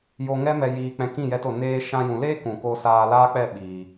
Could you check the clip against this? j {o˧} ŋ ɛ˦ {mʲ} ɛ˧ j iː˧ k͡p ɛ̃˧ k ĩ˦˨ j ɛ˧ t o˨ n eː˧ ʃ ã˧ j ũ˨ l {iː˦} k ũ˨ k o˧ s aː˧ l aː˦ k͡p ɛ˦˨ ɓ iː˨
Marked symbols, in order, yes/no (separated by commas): yes, no, no